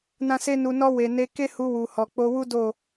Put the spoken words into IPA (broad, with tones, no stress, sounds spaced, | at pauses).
n ã˦ s e˦ n u˧ n ɔ˧ w e˨ n e˧ k e˦ h u˧ w u˨ h ɔ˨ k͡p o˧ w u˦ d o˦˨